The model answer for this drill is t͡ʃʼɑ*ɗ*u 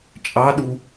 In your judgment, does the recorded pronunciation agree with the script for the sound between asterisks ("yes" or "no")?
yes